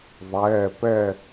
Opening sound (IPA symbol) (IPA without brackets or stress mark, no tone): ðˤ